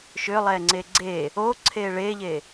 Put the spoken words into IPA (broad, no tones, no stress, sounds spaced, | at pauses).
ʃ ʏː lˠ ɛː ŋ͡ǀ eː ɡ͡ǀ e | oː ǀʰ eː ɭ eː ʎ e